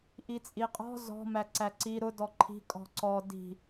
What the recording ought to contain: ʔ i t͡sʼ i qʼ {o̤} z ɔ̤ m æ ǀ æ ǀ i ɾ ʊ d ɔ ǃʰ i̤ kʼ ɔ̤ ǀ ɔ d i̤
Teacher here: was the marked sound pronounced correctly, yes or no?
no